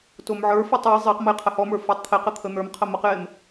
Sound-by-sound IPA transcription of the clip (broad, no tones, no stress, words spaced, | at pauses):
tomʕə˞fɔtˤ əj zˤeqməj qʰəhɔmə˞ fɔtˤt̪ʰeqə t̪ʰən̪ə˞mqʰə məqjem